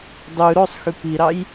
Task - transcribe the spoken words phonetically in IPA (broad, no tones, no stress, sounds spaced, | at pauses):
dˤ ʉ ɾ o sˤ x y p i ɾ ɑ j